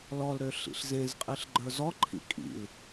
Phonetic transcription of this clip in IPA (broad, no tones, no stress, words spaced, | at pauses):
lɔlɾø ɬḭɬzẽzqʼiɬ ɡ͡ǃə˞zɔǃʰḭ kʼḭl